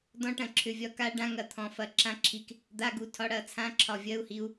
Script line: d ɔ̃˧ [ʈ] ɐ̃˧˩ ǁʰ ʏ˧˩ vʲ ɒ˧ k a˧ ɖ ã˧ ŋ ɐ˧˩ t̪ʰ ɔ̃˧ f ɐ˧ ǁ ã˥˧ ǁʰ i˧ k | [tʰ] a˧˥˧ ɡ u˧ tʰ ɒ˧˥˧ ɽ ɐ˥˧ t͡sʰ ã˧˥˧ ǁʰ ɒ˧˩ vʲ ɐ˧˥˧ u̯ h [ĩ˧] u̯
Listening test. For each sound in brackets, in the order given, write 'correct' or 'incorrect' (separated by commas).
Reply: correct, incorrect, incorrect